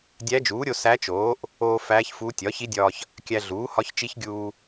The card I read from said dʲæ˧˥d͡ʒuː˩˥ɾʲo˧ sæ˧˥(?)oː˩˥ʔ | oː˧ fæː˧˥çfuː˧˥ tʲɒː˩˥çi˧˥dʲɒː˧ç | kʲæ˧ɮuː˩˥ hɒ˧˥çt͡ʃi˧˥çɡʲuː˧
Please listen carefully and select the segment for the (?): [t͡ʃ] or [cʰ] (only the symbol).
t͡ʃ